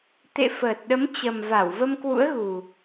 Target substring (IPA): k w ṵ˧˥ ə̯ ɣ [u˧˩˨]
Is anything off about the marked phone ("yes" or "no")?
yes